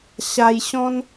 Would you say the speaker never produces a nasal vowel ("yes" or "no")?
no